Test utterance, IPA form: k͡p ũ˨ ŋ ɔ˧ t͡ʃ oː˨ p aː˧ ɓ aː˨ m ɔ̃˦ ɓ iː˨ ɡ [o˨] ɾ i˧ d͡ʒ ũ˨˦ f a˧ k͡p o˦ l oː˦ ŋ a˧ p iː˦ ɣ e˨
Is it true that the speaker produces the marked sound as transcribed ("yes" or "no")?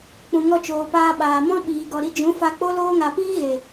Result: no